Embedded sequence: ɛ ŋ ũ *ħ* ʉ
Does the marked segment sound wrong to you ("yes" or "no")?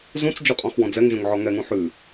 no